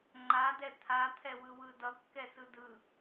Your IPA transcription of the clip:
ŋ͡ǃ a d ɛ t̪ʰ a t̪ʰ ɛ w ɯ w ɯ d ʌ kː ɛ s ɯ d ɯ

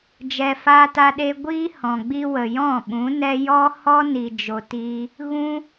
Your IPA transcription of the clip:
d͡ʒ ɛ˧ f aː˦ t a˦ ɗ e˦ ɡʷ iː˦ h ɔ̃˨ ɡ͡b i˧ w ə˨ j ɔ̃˦˨ ɓ ũ˨˦ n ɛ˦ j ɔ˦ h ɔ˦ n i˨ d͡ʒ o˨ t iː˧ | ɣ ũ˦

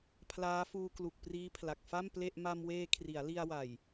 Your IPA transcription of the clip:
pʰ l aː˦˥ f uː˧ k l u˨˩ k̚ p r iː˦˥ pʰ l a˨˩ k̚ f a˥˩ m p l e˥˩ ʔ m a˧ m w eː˧ kʰ r i˩˦ a̯ l i˧ a̯ w a˨˩ j

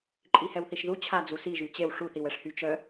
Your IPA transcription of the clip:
ǃʼ i h ɛ w θ i ʃ ð u t͡ɕʰ a d͡z u s i ʒ y t͡ɕ e w ʂ u θ i w ɛ ʂ h y t͡ʃ œ

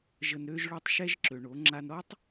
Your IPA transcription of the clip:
ʒ ə˨ n ɾ ø˧ ʒ ɭ o˧ tˤ ʃ ɛ˧ ʒ ǁ ø˨ ɳ o˨˦ ŋ͡ǁ a˧ n ɾ ɔ˦ tˤ

